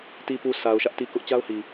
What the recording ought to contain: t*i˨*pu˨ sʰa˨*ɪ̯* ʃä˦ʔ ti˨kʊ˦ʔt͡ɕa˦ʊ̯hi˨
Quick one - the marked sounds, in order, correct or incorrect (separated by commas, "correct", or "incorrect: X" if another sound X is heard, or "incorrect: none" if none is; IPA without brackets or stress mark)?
correct, incorrect: ʊ̯